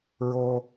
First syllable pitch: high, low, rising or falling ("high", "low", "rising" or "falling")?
high